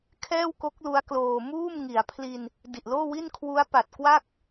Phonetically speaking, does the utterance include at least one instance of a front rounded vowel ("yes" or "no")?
no